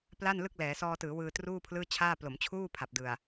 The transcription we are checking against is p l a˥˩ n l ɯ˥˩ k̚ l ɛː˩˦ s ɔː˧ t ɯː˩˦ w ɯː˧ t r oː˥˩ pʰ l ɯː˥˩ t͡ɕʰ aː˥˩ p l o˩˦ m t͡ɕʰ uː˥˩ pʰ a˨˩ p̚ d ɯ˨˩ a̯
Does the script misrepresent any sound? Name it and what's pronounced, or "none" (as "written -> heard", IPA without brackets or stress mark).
oː˥˩ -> uː˥˩